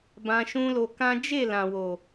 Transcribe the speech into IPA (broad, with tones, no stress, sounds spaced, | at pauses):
b ã˧ ʃ ũ˦ l o˧ k ã˦ d͡ʒ e˦˨ l ã˨ w o˨